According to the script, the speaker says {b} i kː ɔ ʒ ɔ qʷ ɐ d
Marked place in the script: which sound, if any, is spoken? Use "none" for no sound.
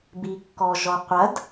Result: b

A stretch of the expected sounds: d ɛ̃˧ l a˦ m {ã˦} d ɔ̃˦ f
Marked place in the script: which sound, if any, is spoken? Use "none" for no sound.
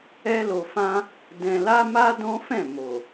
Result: a˦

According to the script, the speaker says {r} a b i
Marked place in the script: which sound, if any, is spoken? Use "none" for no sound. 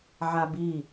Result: ʕ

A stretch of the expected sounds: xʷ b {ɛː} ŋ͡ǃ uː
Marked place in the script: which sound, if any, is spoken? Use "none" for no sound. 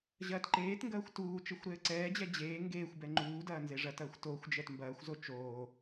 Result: ɛ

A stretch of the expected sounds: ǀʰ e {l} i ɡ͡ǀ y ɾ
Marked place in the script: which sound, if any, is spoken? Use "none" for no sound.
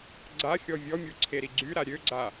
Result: ɾ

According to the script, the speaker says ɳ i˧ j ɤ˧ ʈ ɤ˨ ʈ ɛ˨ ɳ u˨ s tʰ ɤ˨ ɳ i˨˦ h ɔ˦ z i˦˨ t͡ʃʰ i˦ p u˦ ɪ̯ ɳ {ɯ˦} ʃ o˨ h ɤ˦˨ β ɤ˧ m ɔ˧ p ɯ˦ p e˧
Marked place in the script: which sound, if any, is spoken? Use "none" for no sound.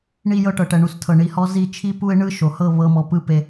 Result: ɯ˦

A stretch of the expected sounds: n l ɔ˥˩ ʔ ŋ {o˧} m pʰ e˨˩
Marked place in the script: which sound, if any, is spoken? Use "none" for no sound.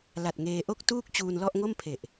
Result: o˥˩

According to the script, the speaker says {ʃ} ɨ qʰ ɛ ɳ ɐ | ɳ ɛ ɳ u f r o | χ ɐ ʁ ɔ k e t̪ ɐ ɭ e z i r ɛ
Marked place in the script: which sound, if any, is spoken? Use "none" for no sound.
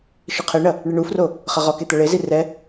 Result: ʃ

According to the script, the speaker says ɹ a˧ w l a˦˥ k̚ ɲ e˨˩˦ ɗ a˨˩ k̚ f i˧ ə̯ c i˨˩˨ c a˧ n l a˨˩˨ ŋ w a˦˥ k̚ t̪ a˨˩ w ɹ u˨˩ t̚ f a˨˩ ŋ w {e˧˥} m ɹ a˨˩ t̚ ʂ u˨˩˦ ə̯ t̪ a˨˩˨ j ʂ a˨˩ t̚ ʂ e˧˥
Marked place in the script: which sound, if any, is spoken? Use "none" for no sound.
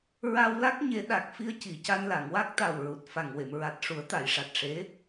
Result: e˨˩˨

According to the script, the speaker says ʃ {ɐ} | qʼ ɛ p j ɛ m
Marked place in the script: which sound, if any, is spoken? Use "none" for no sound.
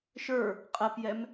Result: ə˞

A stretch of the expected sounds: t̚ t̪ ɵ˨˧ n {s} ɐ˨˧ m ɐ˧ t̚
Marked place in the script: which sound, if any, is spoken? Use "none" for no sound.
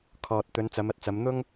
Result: t͡s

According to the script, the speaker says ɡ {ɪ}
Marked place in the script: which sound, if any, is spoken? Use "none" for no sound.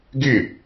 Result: ɪ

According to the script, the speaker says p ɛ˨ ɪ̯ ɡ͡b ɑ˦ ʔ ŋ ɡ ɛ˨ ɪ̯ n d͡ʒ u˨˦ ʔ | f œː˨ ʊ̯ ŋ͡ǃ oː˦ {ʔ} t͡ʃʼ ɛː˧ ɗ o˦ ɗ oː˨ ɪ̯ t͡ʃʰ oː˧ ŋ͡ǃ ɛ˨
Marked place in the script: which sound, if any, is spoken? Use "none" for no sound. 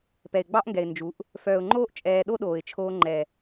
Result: ʔ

